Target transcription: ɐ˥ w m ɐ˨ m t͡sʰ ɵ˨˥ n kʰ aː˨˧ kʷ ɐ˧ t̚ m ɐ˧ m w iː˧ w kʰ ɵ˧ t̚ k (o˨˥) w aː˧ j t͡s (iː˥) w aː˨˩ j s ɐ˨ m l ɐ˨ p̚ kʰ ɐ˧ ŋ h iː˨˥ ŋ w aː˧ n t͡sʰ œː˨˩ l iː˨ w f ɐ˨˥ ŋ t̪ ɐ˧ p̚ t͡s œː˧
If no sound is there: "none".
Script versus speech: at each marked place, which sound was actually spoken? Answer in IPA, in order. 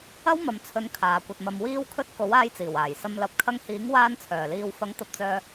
o˨˥, iː˨˩

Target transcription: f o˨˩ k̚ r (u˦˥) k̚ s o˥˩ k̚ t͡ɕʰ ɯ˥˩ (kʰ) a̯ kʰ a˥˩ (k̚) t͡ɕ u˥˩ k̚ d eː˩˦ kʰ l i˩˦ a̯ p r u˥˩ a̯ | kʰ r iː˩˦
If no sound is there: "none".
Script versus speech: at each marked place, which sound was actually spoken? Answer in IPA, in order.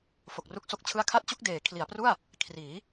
u˦˥, none, t̚

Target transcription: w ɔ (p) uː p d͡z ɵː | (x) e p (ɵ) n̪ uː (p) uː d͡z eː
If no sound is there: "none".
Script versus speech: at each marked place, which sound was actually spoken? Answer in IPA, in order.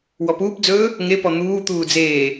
p, ŋ, ɔ, t̪

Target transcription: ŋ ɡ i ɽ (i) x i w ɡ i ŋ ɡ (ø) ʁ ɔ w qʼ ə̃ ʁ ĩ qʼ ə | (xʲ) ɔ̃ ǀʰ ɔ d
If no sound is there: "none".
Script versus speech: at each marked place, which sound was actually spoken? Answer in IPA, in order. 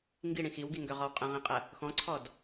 ĩ, ø, x

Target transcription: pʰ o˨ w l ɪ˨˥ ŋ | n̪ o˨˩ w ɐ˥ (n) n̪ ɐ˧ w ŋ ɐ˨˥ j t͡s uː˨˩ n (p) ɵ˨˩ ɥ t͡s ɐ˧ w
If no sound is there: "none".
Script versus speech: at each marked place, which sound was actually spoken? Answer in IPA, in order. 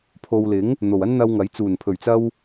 n, pʰ

